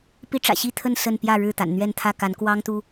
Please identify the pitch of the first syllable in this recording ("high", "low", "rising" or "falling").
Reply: high